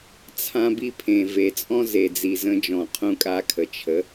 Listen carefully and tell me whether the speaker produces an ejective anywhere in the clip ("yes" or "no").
yes